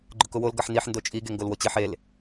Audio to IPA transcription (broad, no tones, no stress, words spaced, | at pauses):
ɡ͡ǃʊkʊwol ɡɐħniħ ndot͡ʃʼi ɡeŋɡolwot͡ɕiħ el